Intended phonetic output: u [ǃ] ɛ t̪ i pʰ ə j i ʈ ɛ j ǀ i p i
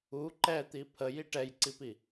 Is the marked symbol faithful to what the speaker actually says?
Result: yes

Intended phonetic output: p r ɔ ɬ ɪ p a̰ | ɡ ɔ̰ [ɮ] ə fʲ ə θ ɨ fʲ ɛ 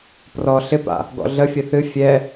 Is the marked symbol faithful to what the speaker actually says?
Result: yes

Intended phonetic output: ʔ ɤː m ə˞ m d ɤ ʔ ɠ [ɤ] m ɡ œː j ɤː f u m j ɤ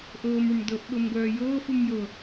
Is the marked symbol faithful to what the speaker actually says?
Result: yes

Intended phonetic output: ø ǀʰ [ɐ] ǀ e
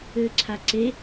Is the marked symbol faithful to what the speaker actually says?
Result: no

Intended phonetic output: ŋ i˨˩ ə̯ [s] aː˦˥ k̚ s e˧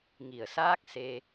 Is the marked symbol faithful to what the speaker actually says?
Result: yes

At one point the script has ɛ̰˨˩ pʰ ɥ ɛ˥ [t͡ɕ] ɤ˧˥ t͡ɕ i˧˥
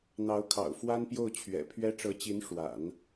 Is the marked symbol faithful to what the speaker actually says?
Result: no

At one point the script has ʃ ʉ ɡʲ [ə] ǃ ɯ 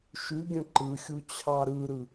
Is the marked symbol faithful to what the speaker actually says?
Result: no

